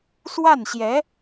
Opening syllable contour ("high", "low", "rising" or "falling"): falling